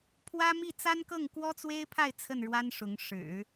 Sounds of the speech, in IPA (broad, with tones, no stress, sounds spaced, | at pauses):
pʰ w ä˥ m i˥˩ t͡s a˥ n k ɤ˥˩ ŋ k w ɔ˥ t͡s w e˥ ɪ̯ pʰ a˥˧ ɪ̯ t͡sʰ ə˥˩ n ɻ w a˥ n ʂ ʊ˧˥ ŋ ʂ ɻ̩˨˩˦